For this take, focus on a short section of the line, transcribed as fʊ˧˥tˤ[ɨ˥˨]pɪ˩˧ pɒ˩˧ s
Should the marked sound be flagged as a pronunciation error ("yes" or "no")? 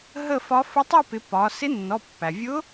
yes